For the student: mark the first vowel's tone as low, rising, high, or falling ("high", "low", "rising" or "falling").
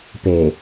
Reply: low